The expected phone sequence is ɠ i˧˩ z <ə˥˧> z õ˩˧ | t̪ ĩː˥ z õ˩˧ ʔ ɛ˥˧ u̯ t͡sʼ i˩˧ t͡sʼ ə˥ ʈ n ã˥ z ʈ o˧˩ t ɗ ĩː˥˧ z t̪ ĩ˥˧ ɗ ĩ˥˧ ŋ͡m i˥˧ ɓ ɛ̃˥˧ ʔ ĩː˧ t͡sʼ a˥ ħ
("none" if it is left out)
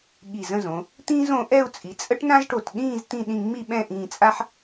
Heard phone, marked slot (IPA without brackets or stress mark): ə̃˥˧